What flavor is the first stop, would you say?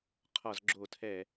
aspirated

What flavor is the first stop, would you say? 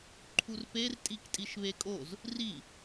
click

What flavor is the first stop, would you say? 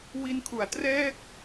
aspirated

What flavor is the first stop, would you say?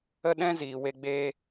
implosive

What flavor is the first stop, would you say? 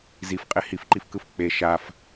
ejective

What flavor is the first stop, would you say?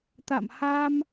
plain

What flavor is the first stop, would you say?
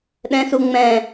implosive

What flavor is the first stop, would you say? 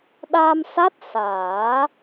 implosive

